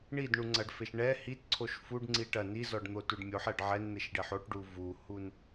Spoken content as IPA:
ɳ i d ɳ u ŋ͡ǀ ɐ ɖ f e ʃ ɳ ɛ h i t ǀʰ o ʃ f u ɖ ŋ͡ǀ i ʈ ɐ n i z ɔ ɖ n̪ o t u ɖ mʲ o ħ ɛ ɖ ʕ ɛ n n̪ e ʃ ɖ e ħ o ʈ ɖ u v u h u n

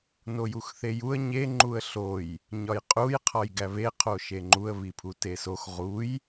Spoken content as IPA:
n o j u x θ e j u ə̯ ɲ e ŋ͡ǃ u ə̯ ɬ o j | ɲ ɒ j qʼ u j qʰ ɒ j ɡ æ β e qʰ o ʃ e ŋ͡ǃ u ə̯ β i pʰ u t e s o x ʁ u j

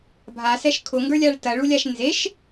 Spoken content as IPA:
bʱ a s ɛ ʃ kʰ ʊ ŋ ɡ ə˞ lʲ a ɭ t ɐ ɭ u lʲ a ʃ n z e ʃ

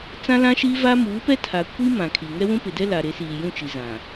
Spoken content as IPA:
t͡s ã˦ l ã˦ ʃ i˦ v a˦ m uː˨˦ p ɛ˦ tʰ a˨ kʷ i˦ m ã˨ kʰ i˨ ŋ ɛ˦ w ũ˦ p ɪ˨ d ɛ˦ l a˨ ɾ e˨˦ s iː˨ j ũ˦˨ t͡ʃ i˨ z ã˨

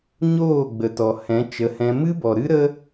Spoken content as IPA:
ɲ oː˦˨ ɡ͡b ə˨ t ɔ˨ h ɛ̃˨˦ t͡ʃ ə˨˦ h ɛ̃˧ m ɨ˦ b ɔ˨ ɾ ɨ˦ ɾ ə˦

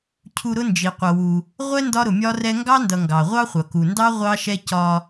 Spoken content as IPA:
cʰ u˦ ɾ ʊ˥ n d͡ʒ i˨ qʷ ʌ˨ w u˨ | ʁʷ ɛ˥ n d ɒ˥ ɾ ʊ˨ mʲ ɒ˥ r ɛ˥ ŋ ɡ ɑ˥ n d ʌ˨ ŋ ɡ ɑ˩ ʁʷ ɑ˥ χʷ ʌ˩ k u˩ n d ɑ˥ ʁʷ ɑ˥ ʃ ɛ˥ c ɒ˦

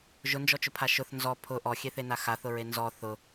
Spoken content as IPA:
ʒ ʊ n d͡ʒ ɔ t͡ʃ ʊ pʰ a ʃ ʊ θ n z ɔ pʰ ʊ ʔ ɔ xʲ e θ e n a x a θ ʊ ɹ e n z ɔ θ ʊ

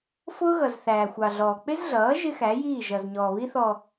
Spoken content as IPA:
f ʊː˦ ɣ ʌ˨ z θ æː˨ xʷ ɑ˨ ɮ ɔː˨ k͡p ɪ˦ z ɮ ʌː˨˦ ʒ ɪ˦ x æ˨˦ j iː˦˨ ʒ ʌ˨ z ɲ ɔː˨ β i˦ θ ɔ˨

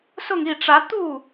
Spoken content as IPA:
s ʊ˥˧ ŋ i˥˩ ʈ͡ʂ ä˧˥ t̪ u˥˩

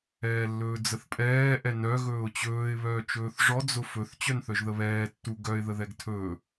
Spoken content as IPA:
ɛː lː ɵː d͡z ə θ pʼ ɛː ʔ ɛ n œ ɣ ɵː ʊ̯ t͡ɕ ɵː ɪ̯ β œː t͡ʃ ɵː θ ʐ ɔ d͡z ʊ f ɵ θ t͡ɕ œ n θ œ ʒ ð ə β ɛː tː u ɡ œ ɪ̯ ð ə ð ɛ ɡ tʰ ɵː

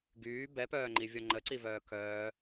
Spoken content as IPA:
ɡ yː b ɛ p œː ŋ͡ǃ i vʲ ɔ ŋ͡ǃ ə ǀ i v œː k œː

